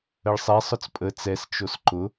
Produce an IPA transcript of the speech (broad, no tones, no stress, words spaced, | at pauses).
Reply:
əɭsˤɛ sˤʊt͡spʼə t͡sɛs t͡ʃosǃʊ